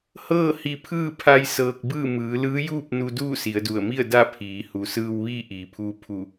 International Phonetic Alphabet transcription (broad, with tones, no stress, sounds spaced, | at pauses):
h ɤː˥˨ h i˧ pʰ ɯː˥˨ pʰ a˧ j s ɤː˧ k̚ b ɯː˥˨ m ɯː˩˧ l ɯː˧˥ j uː˥˨ p̚ n u˧ d uː˥˨ s i˩˧ ə̯ d u˧˩ ə̯ m i˥˨ ə̯ d a˥˨ pʰ iː˩˧ h u˩˧ s ɯː˧ w ʋ iː˥˨ ʔ iː˩ pʰ uː˧ pʰ u˧˩